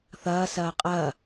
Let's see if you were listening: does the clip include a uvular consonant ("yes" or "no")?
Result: yes